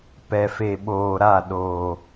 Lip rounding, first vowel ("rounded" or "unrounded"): unrounded